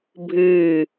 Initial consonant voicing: voiced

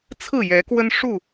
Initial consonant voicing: voiceless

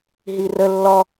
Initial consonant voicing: voiced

